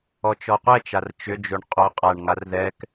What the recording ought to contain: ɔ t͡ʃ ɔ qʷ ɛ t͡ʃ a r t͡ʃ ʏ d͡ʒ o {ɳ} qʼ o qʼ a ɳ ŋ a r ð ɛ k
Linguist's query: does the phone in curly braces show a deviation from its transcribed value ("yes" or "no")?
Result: no